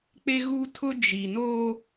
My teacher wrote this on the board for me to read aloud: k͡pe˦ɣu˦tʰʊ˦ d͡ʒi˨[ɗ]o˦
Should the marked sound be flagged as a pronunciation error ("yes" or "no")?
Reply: yes